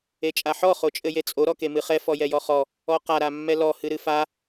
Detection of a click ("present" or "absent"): absent